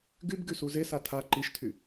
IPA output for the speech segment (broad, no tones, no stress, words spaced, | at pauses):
ɡyb ɡysuzesa tʰa ǃiʃtʰy